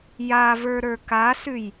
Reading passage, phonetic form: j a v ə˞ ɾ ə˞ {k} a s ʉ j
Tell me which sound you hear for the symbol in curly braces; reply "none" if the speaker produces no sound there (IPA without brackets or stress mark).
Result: k